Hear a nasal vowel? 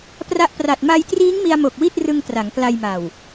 no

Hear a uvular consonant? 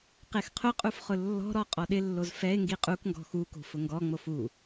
yes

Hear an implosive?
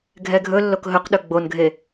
yes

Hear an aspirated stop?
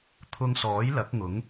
yes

